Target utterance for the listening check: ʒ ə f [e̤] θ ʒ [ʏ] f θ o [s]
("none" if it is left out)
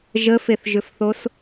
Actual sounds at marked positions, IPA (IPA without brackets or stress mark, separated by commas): e, ʏ, s